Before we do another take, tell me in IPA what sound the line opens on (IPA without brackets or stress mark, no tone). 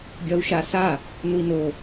ɡʲ